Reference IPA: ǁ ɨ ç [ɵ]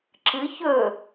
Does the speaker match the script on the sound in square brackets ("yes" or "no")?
yes